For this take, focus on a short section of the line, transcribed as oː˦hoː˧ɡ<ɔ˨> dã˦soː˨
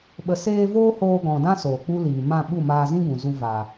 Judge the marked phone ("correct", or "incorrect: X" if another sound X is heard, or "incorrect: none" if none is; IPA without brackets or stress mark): incorrect: ɔ̃˨